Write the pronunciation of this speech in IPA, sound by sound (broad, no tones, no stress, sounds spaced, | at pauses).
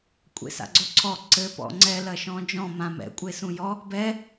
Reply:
kʷʼ ḛ s a̰ ɡ͡ǀ o ǀʰ ɔ ǀ ɘ p ɔ̰ ŋ͡ǀ ɛ l ɐ ʃ ɔ̃ d͡ʒ ɔ̃ m ã m ɛ̰ kʷʼ e s ũ j ɔ | b ɛ